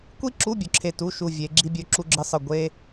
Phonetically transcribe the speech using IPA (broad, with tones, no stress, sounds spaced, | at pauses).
kʷ i˥ ǁ u˧˥˧ bʲ ɵ˩˧ ǁʰ e˧˩ t u˧˥˧ ʃ u˧˩ vʲ e˩˧ ɡ͡ǁ i˥ bʲ ɵ˧˥˧ ǁ u˥ ɡ͡ǁ ɨ˥ sˤ ɨ˧˩ ɡʷ e˥